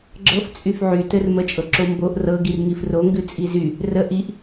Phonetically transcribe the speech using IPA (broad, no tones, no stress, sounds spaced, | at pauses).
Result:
ɡ͡ǁ ɤ f t͡sʼ y f ʕ y t ɘ r m ə t͡ʃʼ ɤ ǁ o m b o ʔ r ɤ ɡ i r ŋ i f r o ŋ ɡ ʉ t͡sʼ i z y | r ə ʔ i ʔ